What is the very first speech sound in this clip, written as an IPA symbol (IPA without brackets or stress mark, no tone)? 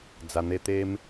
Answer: d͡z